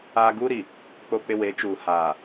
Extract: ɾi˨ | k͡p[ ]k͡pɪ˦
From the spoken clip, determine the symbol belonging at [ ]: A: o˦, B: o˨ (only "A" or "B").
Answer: A